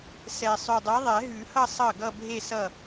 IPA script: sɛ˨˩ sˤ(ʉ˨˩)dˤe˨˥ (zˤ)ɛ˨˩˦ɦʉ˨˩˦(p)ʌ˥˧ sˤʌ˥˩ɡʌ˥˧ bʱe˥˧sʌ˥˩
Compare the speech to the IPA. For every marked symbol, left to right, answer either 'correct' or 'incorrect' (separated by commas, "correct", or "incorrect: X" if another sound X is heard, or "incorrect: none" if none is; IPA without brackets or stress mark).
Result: correct, incorrect: ðˤ, incorrect: h